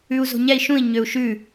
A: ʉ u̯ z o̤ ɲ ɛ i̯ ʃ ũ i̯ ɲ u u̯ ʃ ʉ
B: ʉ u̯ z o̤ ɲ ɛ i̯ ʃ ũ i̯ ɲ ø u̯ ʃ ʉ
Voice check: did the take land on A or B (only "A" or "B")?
B